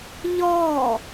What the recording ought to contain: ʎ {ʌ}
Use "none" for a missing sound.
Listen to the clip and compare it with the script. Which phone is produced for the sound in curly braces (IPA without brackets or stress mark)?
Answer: ɔ